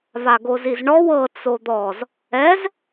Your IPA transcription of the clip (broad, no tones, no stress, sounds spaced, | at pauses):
v a ɡ o z i z ɳ ɔ w ɤ t͡s o d̪ ɔ z | ɛ z